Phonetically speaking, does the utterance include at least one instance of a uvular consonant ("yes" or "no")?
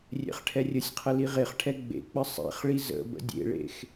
yes